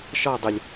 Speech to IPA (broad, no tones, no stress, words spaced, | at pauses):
ʃɒ dˤɪlʲ